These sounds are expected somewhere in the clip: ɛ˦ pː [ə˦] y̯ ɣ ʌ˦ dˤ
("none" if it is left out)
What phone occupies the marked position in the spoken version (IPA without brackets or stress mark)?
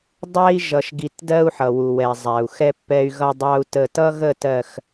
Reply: ɛ˦